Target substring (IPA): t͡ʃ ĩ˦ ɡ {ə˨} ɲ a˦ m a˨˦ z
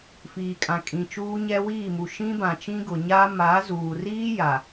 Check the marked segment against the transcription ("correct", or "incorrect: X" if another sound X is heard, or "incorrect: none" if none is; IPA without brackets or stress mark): incorrect: ʊ˨